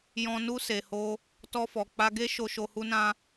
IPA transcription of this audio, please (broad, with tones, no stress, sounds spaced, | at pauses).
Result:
j ɔ̃˨ n u˧ s e˨ h o˧ | t ɔ˧ f ɔ˨ k͡p a˧ ɡ e˦ ʃ o˧ ʃ o˧ h u˦ n ã˦